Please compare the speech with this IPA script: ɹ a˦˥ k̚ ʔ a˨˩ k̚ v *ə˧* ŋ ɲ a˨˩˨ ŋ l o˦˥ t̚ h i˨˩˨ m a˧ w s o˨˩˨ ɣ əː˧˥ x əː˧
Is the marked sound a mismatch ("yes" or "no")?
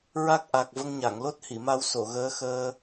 no